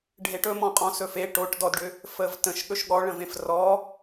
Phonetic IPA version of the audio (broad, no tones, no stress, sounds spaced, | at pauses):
ɖʱ e ʈ ɵ m ɔ̃ qʼ ɔ̃ s ɵ f e ʈ o ʈ d ɔ d ɖ ʏ | f ə v t ə̃ ʃ ɠ ɵ ʃ ɠ ɔ ɭ ə̃ v ẽ f r ɔ